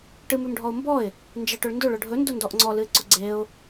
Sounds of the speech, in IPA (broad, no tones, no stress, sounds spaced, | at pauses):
ʈ ɨ m ʉ m ɖʱ ɔ ʊ̯ m b ɔ ɪ̯ | n d͡ʒ e ʈ ɵ ɭ n d ɵ ɭ ʊ ɖʱ ɵ n d ʊ n d ɔ ʔ ŋ͡ǀ ɔ l ɨ ɪ̯ ǀ ʊ ɡ͡ǀ e ʊ̯